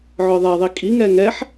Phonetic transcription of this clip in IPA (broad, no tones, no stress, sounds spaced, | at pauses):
ʕ œ ðˤ ɛ ðˤ i kʼ i ŋ ɛ ŋ ɛ ħ